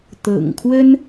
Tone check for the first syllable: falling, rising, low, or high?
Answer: low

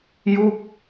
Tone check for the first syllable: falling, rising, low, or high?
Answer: falling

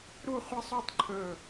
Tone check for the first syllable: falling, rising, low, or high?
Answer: falling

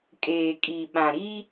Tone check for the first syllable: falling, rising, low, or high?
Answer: low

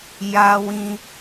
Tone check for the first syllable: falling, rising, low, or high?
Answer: low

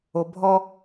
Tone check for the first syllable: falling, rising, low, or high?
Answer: low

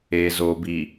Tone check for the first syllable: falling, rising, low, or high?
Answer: low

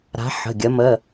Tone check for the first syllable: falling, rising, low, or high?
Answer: rising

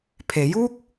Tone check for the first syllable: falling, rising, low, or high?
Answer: rising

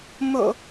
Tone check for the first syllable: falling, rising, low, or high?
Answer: low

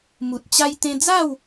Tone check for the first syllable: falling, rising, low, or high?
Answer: low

